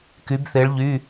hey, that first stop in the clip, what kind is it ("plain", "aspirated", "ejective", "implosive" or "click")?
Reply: plain